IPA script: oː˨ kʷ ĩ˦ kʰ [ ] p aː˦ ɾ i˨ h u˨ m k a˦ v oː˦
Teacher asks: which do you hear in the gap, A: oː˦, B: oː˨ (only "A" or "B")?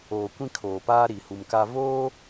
B